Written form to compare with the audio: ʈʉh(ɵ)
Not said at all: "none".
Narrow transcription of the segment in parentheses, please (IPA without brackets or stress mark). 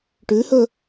ɵ